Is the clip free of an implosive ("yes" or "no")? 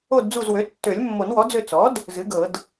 yes